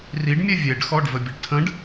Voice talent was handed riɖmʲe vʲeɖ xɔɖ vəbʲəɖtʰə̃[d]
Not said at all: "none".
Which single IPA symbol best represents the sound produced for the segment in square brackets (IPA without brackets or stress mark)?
ɖ